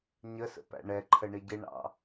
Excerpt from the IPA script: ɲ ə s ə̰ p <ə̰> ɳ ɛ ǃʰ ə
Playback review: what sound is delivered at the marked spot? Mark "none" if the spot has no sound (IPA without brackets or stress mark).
æ̰